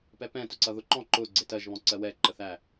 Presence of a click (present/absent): present